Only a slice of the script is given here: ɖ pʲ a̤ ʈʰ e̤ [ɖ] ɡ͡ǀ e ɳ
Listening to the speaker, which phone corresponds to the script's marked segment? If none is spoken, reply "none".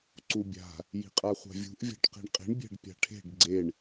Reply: ɖ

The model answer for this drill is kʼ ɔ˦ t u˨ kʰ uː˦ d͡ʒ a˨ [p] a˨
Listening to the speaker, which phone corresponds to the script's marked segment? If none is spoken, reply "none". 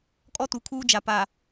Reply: p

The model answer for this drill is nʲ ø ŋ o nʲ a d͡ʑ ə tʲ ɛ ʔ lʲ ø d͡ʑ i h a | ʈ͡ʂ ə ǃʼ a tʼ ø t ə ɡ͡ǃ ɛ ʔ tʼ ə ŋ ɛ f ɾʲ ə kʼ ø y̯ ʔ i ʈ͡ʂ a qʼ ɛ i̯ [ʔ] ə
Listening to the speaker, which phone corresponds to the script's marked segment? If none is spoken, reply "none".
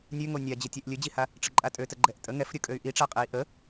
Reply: ʔ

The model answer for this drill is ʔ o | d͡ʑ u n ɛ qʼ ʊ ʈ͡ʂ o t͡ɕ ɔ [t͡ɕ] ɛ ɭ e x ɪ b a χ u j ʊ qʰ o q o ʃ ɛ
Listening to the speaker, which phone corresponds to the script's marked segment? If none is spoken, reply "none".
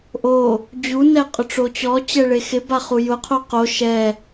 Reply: t͡ɕ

